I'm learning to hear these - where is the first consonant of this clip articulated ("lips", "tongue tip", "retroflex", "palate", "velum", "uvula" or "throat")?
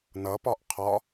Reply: tongue tip